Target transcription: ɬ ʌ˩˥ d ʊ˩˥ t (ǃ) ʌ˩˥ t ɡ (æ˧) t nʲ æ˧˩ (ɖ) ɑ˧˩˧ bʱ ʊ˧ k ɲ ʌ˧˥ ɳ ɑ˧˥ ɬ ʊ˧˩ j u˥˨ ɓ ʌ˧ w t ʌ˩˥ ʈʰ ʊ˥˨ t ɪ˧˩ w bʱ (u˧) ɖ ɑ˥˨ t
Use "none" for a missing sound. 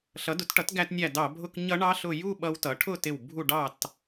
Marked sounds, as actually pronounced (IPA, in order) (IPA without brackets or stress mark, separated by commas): ʈ, æ˧, d, u˥˨